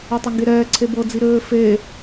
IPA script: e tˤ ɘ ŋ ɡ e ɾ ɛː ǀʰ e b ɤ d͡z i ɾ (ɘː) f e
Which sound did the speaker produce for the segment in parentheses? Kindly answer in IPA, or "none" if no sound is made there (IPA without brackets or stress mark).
ɘː